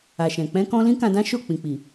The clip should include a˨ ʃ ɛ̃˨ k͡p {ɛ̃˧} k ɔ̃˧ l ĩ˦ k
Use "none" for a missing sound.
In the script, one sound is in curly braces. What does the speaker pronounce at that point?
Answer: ɛ̃˧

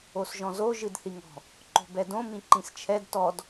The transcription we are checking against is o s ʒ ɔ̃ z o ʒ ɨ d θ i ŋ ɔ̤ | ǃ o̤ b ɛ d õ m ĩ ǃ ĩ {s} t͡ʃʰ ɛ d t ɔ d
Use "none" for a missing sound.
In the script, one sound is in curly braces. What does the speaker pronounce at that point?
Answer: s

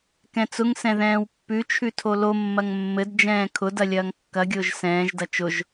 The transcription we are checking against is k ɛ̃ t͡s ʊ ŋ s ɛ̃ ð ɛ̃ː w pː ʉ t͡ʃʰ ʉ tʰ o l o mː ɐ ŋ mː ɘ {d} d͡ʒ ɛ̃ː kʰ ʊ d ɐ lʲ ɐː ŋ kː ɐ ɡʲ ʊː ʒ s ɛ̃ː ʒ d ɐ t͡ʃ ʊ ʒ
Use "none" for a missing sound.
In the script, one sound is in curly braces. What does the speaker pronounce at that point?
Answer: d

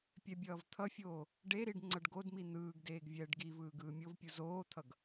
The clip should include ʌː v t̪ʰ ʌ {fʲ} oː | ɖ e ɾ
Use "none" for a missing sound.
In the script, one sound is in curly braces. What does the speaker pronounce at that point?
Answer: fʲ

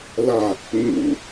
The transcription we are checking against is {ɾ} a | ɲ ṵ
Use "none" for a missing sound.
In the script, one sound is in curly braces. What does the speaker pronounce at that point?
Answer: l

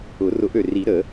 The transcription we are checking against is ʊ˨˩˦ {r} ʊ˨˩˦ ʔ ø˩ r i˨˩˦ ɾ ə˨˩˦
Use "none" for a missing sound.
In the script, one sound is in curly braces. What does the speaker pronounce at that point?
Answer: r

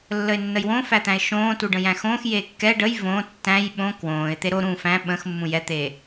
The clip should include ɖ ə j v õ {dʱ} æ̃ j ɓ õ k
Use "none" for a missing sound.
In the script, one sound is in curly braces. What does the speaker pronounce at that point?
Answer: tː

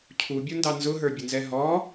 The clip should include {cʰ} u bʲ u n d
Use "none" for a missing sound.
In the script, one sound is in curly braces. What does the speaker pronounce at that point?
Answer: cʰ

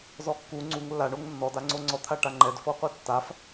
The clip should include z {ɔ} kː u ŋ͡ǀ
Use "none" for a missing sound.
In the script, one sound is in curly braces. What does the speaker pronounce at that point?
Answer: ɔ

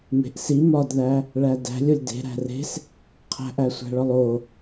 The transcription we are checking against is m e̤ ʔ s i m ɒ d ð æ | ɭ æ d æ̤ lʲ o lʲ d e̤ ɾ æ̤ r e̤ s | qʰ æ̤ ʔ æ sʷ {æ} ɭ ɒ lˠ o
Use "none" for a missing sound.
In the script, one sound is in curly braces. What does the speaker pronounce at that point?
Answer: æ̤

